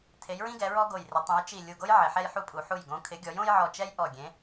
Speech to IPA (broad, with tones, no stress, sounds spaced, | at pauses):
tʰ e˩˧ j ɹ ĩ˦ ɡ ɛ˩˧ ɹ ɔ˦ ɡ o˨˩ j r ɪ˩˧ tˤ ẽ˩˧ j t͡ʃ i˨˩ lʲ u˨˩ ɡ o˦ j ʕ ɪ˩˧ ħ ɛ˦ j ħ u˦ pʼ u˩˧ ħ u˨˩ j ɡ õ˩˧ kʰ ɪ˩˧ ɡʲ ɔ˩˧ j õ˦ j ʕ ɔ˨˩ t͡ʃ ɛ˦ j ʔ ɔ˨˩ ɡʲ ẽ˩˧